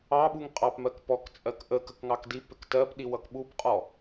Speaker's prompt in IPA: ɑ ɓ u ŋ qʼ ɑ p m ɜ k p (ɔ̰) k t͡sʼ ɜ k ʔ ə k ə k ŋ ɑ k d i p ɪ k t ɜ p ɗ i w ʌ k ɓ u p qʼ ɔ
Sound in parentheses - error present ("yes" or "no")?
yes